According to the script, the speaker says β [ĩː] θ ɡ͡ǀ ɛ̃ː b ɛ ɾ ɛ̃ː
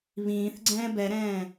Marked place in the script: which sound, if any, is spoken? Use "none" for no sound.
ĩː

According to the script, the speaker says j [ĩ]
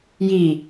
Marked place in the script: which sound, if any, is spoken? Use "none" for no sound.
i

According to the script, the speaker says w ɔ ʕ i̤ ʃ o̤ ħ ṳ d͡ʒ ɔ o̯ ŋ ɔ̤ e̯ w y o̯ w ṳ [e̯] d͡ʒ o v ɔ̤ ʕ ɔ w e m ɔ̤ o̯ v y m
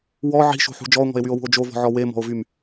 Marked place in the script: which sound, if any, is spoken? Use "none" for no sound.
o̯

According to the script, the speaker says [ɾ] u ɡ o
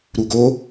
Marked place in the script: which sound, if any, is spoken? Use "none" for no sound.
ɾ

